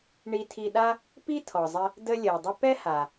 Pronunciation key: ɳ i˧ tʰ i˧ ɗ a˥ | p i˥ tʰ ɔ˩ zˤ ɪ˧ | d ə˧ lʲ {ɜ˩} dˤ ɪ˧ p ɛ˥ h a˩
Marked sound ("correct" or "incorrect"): correct